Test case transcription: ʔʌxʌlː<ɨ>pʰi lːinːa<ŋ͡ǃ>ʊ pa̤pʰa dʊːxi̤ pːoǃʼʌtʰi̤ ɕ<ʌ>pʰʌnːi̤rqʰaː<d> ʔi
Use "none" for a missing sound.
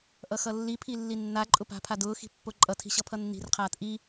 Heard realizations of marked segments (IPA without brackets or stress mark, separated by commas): i, ǃʼ, ʌ, t